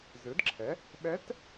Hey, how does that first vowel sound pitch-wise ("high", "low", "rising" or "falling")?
rising